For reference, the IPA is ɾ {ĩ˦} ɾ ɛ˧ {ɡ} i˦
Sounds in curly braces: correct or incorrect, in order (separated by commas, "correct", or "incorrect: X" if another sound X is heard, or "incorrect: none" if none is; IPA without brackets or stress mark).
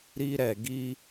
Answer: incorrect: i˦, correct